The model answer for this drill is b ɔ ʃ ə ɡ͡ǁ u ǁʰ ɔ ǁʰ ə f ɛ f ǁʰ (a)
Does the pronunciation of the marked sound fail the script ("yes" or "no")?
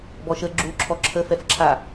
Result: no